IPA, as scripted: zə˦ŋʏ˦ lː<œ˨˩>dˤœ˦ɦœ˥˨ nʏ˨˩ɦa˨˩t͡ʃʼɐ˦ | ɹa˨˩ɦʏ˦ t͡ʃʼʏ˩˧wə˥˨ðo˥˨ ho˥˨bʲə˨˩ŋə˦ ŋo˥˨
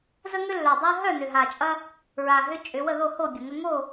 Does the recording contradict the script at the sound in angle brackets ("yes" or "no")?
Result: no